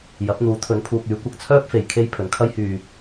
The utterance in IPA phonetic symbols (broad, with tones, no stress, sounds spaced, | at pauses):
j ɐ˨˥ p̚ n̪ uː˨˥ t̪ʰ ɵ˨˥ n pʰ uː˨ k̚ yː˨˥ kʷ ɐ˨ k̚ t͡sʰ œː˥ p̚ f e˨ j kʰ e˥ j pʰ ɵ˨ n kʰ ɐ˥ j h yː˨